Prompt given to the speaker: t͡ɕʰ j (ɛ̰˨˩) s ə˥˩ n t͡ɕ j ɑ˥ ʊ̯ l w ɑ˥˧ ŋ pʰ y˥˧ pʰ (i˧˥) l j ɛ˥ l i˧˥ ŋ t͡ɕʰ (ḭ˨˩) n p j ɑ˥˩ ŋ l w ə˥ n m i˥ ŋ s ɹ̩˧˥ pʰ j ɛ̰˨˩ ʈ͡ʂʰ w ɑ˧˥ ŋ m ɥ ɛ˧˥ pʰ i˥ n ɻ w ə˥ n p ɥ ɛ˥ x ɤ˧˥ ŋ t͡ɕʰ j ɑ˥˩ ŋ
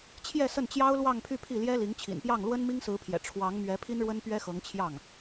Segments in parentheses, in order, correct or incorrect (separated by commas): incorrect, incorrect, correct